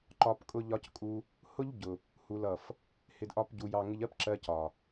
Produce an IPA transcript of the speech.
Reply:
ǃɒ˨p kʼʊ˧ʎɒ˧ckʼu˧ | hʊ˦ʎɟʊ˨ | hu˨lʌ˨f | hɪ˨dʔɒ˨p ɟu˨jɑ˨ŋɪ˧ʎɜ˦p ǁɜ˧cɒ˨

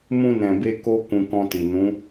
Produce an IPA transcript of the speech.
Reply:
mũ˧nɛ̃˨be˧ ko˦ kũ˧kɔ̃˧ti˨ nũ˨˦

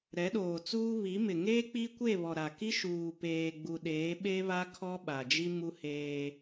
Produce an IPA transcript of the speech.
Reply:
ɾɛ˨˦ɗoː˨t͡suː˦ βi˨˦mɪ˨ ŋeː˦ k͡pi˦kʷe˦˨βɔ˨ ɾa˨ki˦ ʃuː˨peː˨ɡ͡bu˨ ɗeː˨˦ɓe˦βa˦ kʰɔ˦ɓa˨d͡ʒi˦mu˦ heː˦

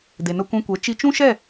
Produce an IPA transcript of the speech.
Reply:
de˨nə˧kʷɛ̃˧kʷɛ˨˦ t͡ʃi˧t͡ʃũ˦ʃɛ˦˨

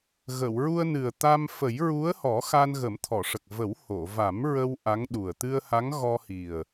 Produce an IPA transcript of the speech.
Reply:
ɣə˨˩˨wɹu˧ə̯nɨ˨˩ə̯ t̪a˧m fə˨˩˦jɹu˧˥ə̯hɔ˨˩˦ xa˧nɣə˨˩˦mt̪ʰɔ˨˩˨ʂə˨˩k̚ və˨˩˦who˨˩˨va˨˩˦mɹə˧w ʔa˧˥ŋɗu˨˩ə̯ t̪ɨ˧ə̯ha˧˥ŋɣɔ˧ hi˨˩ə̯

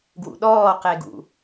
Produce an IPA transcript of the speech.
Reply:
ɡwṵɗɔː qeɡṵ

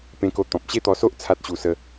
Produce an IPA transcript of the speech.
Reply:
pẽ˦ko˦ t̪ɔ̃˨p̚ɕe˥˧t̪ɔ˧so˦ʔ t͡sʰa˦t̚ɕu˧ sə˦

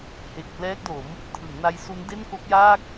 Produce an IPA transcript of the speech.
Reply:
he˨˩k̚ plɛː˦˥k̚do˩˦m | tʰɯ˩˦ŋna˦˥j su˦˥nde˥˩n ko˦˥k̚jaː˥˩k̚

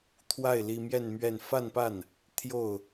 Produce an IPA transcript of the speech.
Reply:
t̪ʰwa˥˩ɪ̯ li˥ mjɛ˥˧n mɥɛ˥˧n fa˥˧npa˥˩n | t̪ʰjo˥˩ʊ̯

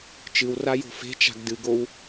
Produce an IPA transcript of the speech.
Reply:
t͡ʃɨwrajo̤ fe̤t͡ʃa̤ɡ dɨɡow

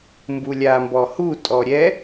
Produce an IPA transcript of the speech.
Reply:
mbulʲambɔhu tʼɔɾʲɛ

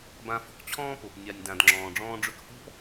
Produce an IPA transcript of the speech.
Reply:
bã˧ fɔ̤˧kt͡ɕʰɔ̃ː˦ po˨p nʲa˨nʲdã˨d ŋ͡ǁɔ̃ː˨ɖ͡ʐɔ̃ː˧ɖ͡ʐɵ˧k hɔ̤˦p

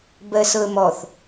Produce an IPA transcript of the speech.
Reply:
bɜsɤə̯mɔθ

